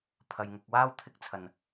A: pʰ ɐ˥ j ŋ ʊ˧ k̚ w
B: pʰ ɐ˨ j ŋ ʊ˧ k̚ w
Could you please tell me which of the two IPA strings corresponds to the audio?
B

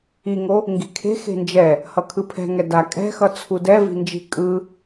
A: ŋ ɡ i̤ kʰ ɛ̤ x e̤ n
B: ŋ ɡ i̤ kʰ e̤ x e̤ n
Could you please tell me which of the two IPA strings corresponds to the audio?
B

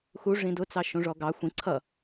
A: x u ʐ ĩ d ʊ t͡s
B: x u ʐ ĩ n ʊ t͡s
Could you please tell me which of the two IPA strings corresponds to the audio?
A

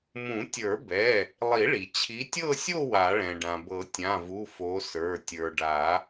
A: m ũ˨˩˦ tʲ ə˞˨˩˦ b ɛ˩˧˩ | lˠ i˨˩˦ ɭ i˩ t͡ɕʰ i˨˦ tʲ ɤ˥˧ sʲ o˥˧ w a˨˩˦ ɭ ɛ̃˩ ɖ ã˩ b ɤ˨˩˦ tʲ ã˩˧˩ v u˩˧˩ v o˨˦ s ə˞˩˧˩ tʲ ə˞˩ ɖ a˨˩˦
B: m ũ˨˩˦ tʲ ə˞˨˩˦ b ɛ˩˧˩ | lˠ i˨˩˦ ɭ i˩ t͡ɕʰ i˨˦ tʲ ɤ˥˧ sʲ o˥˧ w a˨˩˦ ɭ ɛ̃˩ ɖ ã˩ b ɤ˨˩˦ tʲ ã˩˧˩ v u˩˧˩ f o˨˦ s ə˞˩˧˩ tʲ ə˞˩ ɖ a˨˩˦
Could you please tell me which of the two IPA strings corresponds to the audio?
B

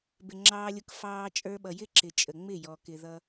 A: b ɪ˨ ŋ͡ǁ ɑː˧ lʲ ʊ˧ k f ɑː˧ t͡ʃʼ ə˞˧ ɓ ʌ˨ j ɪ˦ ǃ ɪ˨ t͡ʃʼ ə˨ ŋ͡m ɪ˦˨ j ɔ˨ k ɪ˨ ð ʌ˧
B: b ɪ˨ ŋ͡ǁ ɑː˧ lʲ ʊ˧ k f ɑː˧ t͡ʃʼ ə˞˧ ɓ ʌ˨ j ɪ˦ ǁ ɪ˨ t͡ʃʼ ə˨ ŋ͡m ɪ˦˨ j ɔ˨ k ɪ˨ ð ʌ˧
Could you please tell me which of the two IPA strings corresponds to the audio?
B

